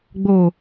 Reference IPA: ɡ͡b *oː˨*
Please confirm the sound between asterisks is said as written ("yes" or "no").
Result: yes